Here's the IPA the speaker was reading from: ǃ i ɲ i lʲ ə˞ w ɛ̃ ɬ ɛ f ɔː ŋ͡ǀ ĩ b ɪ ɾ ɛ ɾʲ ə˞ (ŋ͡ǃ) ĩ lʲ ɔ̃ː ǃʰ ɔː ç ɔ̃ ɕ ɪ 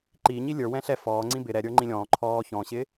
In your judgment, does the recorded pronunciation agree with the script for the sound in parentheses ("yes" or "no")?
yes